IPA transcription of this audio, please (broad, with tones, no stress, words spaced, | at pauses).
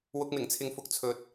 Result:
wʊ˧k̚mɪ˨˩ŋt͡sʰɪ˨ŋ fʊ˨k̚t͡sʰɵ˨˥t̚